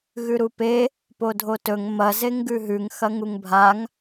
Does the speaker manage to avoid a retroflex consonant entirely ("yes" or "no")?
yes